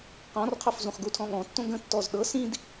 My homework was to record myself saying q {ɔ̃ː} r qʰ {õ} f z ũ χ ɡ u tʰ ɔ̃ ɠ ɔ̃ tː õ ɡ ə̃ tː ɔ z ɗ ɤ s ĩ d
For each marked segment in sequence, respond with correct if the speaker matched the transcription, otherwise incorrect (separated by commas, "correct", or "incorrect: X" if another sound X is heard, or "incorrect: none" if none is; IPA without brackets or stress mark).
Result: incorrect: ɔ̃, incorrect: o